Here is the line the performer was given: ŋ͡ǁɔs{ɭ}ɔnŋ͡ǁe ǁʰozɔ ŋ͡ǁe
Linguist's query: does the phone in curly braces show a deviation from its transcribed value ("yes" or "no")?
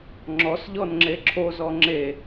yes